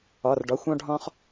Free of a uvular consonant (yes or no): no